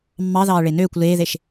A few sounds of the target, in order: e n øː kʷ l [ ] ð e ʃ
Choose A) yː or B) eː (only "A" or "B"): B